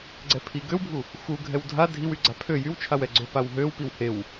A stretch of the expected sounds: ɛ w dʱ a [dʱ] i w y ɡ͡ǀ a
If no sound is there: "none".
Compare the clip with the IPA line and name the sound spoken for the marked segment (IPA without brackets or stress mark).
dʱ